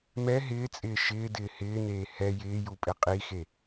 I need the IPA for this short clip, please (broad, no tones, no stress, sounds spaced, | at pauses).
m ɛ ɦ ɪː t͡sʼ ɪː ʃ ɪː d ɪː h ɪː n eː h ɛ j ɪː j u pʼ ɪ qʼ i x e